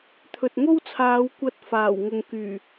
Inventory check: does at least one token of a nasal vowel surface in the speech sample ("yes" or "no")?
no